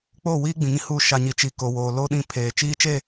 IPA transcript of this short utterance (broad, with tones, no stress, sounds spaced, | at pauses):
k͡p oː˦˨ w iː˦ ɡ͡b ĩ˨ ŋ ĩ˦ h u˦˨ ʃ a˨ ɲ i˨ t͡ʃ i˨ k o˨ w oː˨ l o˦ ɗ ĩ˦˨ pʰ eː˨ t͡ʃ iː˦ t͡ʃ e˦˨